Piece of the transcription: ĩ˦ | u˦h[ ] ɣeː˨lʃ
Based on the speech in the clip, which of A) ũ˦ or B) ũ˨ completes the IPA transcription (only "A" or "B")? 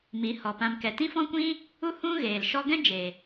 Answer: A